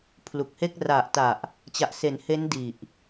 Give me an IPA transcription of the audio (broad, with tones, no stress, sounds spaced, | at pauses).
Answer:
pʰ l u˨˩ k̚ h e˥˩ k̚ r a˨˩ ʔ t a˨˩ ʔ | t͡ɕ a˨˩ ʔ s e˩˦ n h e˦˥ n d i˨˩ ʔ